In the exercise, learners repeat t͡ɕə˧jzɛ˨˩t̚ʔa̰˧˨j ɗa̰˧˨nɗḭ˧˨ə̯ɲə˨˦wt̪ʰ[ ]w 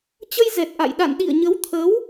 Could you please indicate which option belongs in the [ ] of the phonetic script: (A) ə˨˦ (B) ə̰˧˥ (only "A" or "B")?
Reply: A